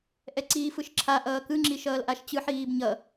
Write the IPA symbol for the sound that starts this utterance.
ʔ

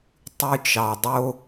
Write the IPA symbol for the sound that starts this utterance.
tˤ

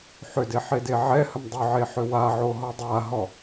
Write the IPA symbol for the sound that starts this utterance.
ħ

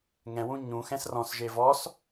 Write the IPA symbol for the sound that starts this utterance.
ŋ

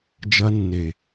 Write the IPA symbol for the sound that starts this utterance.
d͡ʒ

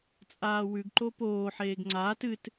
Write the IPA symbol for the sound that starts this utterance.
t͡sʼ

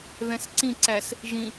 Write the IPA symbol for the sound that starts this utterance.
ð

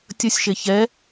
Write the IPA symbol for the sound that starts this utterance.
tʲ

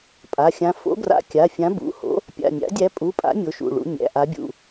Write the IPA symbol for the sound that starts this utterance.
pʼ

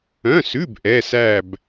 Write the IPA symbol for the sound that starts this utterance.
œ̃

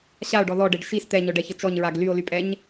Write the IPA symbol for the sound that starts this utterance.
ɕ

